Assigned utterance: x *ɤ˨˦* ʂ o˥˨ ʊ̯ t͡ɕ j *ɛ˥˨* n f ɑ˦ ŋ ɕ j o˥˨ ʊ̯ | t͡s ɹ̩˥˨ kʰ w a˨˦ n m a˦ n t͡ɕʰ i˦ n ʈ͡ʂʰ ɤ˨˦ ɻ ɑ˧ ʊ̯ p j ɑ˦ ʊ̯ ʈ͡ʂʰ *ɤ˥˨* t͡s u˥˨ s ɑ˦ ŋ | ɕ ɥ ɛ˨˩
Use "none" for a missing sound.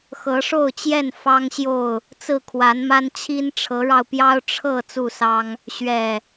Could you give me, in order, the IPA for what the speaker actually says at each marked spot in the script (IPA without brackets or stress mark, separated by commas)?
ɤ˨˦, ɛ˥˨, ɤ˥˨